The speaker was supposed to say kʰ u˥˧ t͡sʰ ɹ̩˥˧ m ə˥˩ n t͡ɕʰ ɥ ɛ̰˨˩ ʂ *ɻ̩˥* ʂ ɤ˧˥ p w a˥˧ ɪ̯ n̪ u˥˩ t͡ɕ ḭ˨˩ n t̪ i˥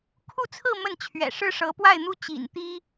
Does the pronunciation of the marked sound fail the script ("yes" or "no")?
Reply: no